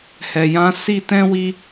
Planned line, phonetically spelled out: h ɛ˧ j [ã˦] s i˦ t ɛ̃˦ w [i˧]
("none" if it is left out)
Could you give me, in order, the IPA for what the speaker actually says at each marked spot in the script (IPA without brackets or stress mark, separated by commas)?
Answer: ã˦, i˦